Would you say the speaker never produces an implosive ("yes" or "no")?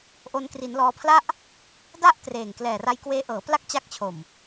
yes